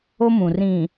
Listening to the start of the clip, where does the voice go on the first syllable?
high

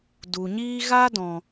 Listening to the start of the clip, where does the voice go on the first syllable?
low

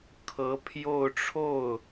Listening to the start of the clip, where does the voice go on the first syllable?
rising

